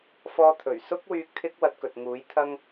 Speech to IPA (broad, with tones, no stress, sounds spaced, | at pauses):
f ɔː˧ t̪ʰ ɵ˨˩ ɥ s ʊ˥ k̚ w yː˧ k̚ t̪ʰ ɪ˥ k̚ w ɐ˧ t̚ k ɵ˨ t̚ ŋ uː˨˥ j t̪ʰ ɐ˧ ŋ